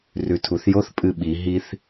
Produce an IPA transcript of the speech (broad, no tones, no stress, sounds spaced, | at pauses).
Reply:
r ʉ tʰ u θ j o θ pʼ ɨ ɓ i ɦ i θ